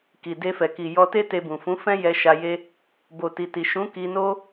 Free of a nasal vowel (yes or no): no